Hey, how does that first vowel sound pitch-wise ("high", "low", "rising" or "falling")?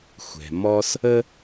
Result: low